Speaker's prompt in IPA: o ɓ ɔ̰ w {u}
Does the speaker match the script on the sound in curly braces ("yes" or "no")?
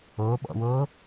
no